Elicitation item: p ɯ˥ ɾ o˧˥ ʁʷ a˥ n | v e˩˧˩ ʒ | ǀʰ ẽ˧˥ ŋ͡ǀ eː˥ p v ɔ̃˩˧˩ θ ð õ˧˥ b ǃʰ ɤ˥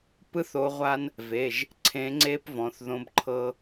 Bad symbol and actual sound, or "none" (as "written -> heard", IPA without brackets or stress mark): ɾ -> θ